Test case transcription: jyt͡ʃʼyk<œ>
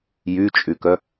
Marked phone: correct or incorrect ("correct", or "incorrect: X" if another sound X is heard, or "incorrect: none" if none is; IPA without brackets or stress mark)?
correct